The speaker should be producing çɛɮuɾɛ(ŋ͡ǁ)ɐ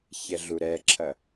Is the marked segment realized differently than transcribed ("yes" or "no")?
yes